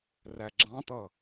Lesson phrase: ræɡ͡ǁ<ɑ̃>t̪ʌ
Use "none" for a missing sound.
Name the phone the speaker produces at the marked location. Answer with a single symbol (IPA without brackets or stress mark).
ɑ̃